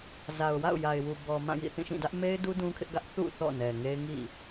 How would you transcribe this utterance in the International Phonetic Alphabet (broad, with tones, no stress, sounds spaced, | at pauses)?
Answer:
z a˨ ʊ̯ w a̰˦˨ ʊ̯ j a˨ ɪ̯ w u˨ b ɔ˨ m ã˦˨ j ḭ˦˨ θ ĩ˦˨ ʃ ĩ˦˨ d ä˦ ʔ m e˦ ɪ̯ d u˦ d ũ˦ kʰ ɪ˦ ʔ ɡ ä˦ ʔ θ ṵ˦˨ θ ɔ̰˦˨ n ɛ˨ ŋ e˦ ɪ̯ ŋ ḭ˦˨